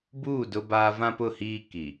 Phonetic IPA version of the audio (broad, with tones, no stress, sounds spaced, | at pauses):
b uː˦˨ d ʊ˦ b aː˦ v ã˦ p ʊ˦˨ h iː˦ k i˨